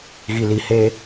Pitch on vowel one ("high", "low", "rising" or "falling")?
low